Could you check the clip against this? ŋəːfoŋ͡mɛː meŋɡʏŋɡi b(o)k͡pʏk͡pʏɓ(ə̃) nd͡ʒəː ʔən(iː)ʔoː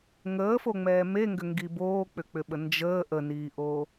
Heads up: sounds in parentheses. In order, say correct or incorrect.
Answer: incorrect, incorrect, correct

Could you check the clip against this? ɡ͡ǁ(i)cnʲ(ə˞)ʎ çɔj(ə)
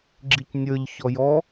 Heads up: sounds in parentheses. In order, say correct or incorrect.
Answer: correct, correct, incorrect

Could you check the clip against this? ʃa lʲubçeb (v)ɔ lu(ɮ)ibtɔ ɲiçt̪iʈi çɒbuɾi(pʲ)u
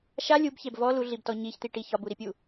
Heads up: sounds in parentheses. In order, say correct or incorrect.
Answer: correct, correct, correct

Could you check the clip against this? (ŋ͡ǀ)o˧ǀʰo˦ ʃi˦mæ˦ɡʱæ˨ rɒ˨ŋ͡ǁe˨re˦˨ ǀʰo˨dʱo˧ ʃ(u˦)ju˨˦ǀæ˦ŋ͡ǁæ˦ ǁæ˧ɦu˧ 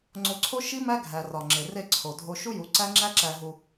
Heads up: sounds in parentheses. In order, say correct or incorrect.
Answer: correct, correct

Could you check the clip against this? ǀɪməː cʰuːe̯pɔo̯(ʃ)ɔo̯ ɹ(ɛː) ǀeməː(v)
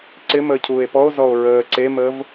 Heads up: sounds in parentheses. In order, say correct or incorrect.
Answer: incorrect, incorrect, correct

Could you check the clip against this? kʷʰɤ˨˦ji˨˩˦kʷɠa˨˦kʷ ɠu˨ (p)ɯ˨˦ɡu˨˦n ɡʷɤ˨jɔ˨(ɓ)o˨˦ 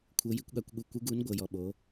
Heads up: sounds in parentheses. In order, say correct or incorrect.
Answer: incorrect, correct

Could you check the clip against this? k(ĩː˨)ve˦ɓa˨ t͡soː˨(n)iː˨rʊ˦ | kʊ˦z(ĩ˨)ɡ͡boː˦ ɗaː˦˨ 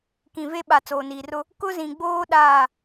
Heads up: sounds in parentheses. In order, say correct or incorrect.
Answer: incorrect, correct, correct

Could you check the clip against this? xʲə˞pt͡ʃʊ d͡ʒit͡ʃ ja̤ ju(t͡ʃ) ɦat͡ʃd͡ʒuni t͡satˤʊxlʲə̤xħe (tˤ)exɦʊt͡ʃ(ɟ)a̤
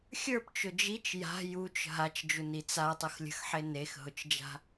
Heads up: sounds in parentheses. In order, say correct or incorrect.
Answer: correct, incorrect, incorrect

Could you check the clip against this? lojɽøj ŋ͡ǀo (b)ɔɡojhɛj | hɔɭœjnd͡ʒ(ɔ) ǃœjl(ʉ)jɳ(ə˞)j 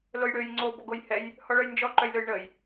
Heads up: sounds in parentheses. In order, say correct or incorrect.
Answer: correct, correct, incorrect, incorrect

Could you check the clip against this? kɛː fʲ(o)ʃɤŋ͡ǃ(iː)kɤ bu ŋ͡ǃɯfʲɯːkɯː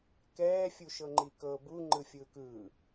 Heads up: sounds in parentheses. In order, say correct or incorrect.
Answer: incorrect, incorrect

